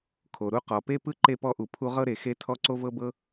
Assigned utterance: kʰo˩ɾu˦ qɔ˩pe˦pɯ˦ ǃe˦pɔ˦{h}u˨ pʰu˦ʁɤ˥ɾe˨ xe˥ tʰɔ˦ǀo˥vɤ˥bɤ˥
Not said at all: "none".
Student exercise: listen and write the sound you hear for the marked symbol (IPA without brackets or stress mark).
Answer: ʔ